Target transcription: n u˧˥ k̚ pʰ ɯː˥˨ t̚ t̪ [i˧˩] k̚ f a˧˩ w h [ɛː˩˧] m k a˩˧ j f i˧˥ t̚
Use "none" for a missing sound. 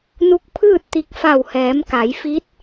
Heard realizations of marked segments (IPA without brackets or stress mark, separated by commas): i˧, ɛː˩˧